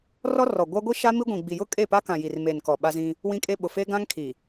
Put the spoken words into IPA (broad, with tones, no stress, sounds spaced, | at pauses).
r ɔ˦ r ɔ˨ ɡʷ a˦ ɡʷ i˦ ʃ a˦ m i˦ ɡʷ ĩ˨ ɡ͡b i˨ j ʊ˦ kʼ e˦˨ p a˦ k ã˨ j i˨ r m e˨ n k ɔ˨ ɓ a˦ z ĩ˦ | w ĩ˦ kʼ e˦ ɓ ʊ˨ f eː˦ ɡ ã˦ ŋ kʰ i˨